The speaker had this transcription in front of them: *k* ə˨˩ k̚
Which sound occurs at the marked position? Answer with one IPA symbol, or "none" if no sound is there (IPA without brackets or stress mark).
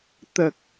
t̪